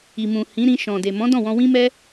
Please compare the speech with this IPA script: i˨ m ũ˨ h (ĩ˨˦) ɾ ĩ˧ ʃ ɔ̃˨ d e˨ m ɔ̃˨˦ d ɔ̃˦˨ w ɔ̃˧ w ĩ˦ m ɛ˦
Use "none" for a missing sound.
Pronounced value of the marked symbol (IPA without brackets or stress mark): ĩ˨˦